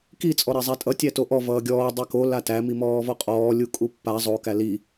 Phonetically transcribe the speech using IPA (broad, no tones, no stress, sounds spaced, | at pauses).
k i t͡sʼ ɔ ɾ ɛ zˤ æ tʼ ʌ tʲ æ t o ʔ ɔ v ʌː ɡʲ ɔː dˤ ɛ k o l a t æ m i m ɔː v ɔ qʼ ɔː lʲ u kʼ u pː a zˤ o k æ l i